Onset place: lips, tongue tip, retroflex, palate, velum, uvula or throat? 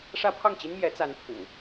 retroflex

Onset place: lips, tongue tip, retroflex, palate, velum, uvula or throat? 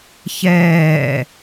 palate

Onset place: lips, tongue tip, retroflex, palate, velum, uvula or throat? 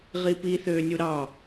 uvula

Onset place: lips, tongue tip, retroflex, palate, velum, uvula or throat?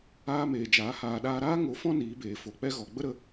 lips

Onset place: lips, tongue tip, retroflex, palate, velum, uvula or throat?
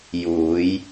palate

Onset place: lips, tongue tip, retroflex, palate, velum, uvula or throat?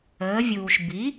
lips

